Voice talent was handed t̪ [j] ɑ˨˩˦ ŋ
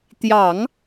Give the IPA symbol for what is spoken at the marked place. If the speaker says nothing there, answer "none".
j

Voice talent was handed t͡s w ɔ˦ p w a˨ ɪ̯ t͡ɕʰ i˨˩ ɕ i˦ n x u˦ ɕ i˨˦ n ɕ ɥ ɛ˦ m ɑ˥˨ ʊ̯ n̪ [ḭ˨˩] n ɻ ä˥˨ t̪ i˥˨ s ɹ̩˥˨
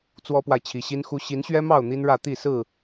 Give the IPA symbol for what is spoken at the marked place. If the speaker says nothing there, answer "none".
i˦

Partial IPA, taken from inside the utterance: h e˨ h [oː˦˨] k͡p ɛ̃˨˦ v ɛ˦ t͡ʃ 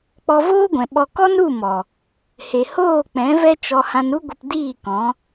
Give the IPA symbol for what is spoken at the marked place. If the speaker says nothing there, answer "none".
oː˦˨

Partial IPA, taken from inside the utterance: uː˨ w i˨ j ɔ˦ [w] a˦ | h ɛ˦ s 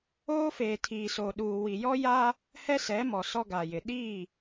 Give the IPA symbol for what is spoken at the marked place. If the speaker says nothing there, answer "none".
j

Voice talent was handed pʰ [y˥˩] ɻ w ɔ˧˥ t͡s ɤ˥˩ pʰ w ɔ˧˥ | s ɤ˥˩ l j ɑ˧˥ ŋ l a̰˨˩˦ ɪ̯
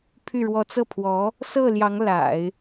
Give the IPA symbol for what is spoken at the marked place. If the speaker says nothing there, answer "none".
y˥˩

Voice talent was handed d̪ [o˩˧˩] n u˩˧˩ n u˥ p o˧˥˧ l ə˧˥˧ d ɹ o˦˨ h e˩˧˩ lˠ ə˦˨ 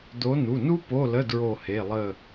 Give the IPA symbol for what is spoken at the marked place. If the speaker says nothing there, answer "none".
o˨˦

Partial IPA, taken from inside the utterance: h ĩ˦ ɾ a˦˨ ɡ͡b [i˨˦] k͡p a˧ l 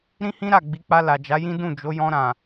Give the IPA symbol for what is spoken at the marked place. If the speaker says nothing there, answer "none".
i˨˦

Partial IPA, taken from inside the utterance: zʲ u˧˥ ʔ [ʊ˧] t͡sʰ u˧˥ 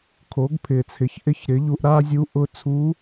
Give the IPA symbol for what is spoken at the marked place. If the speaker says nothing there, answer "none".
ʊ˧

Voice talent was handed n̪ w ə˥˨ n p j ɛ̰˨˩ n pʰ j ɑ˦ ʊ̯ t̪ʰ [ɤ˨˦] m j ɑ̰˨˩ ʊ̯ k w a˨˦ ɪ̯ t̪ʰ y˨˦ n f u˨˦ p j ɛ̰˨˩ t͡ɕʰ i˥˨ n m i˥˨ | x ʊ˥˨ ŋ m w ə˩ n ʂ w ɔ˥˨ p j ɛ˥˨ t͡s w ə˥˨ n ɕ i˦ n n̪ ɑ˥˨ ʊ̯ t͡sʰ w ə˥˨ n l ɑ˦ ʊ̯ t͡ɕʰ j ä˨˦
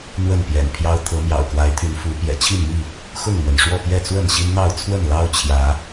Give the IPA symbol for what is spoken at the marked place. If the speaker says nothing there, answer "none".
ɤ˨˦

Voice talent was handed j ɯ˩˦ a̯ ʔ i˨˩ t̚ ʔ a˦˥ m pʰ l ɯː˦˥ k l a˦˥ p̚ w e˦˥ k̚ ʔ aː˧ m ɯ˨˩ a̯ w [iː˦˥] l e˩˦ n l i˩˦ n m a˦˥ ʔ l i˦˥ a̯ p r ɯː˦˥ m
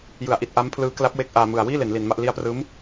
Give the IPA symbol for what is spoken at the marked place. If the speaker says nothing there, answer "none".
iː˥˩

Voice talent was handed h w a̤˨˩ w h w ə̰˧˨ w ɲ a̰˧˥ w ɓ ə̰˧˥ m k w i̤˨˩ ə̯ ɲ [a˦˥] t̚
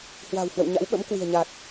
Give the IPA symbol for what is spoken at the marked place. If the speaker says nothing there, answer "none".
a˨˩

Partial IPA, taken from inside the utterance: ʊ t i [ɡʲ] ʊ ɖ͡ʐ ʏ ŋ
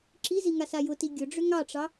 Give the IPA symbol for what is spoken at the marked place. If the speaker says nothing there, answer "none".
ɡʲ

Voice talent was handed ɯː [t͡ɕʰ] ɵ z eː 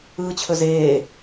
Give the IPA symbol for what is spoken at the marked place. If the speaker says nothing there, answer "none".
t͡ɕʰ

